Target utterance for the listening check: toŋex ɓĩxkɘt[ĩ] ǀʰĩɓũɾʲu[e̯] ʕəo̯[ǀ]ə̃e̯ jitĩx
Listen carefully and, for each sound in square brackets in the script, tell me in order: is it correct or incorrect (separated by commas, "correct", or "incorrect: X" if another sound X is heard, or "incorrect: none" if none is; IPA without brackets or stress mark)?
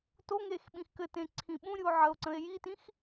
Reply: incorrect: ẽ, incorrect: o̯, correct